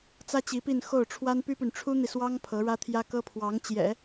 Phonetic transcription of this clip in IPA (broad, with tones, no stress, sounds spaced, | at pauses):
t͡s ä˥ t͡ɕ i˧˥ p i˥˧ n x o˥˩ ʊ̯ ʈ͡ʂʰ w a˥ n p y˥ p y˨ n ʈ͡ʂʰ u˥ n̪ i˨ s w ɑ˥ ŋ pʰ ɤ˧˥ ɻ ä˥ t̪ʰ j ä˥ k ɤ˥ pʰ w ɑ˧˥ ŋ t͡ɕ j ɛ̰˨˩˦